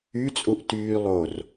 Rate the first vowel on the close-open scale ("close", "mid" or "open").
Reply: close